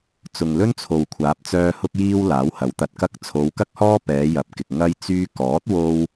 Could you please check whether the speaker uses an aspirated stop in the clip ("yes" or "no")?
yes